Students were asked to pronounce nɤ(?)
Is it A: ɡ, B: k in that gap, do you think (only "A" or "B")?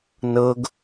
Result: A